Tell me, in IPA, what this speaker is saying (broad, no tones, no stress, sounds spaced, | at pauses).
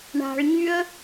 ɳ a̤ ɭ ɲ y ə̯